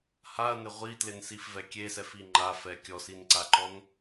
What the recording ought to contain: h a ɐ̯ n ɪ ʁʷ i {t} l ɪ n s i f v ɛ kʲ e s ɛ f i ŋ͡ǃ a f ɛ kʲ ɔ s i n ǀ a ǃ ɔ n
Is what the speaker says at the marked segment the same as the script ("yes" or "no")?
yes